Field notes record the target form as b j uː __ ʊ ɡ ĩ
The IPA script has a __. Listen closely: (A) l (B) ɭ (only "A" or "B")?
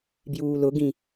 A